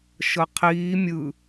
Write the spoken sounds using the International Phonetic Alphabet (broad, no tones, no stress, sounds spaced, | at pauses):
ʃ ɤ qʰ iː mʲ ɯ